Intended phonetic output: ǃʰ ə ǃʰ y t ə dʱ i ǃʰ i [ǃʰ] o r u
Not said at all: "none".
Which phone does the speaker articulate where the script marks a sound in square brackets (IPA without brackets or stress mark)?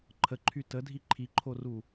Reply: ǃʰ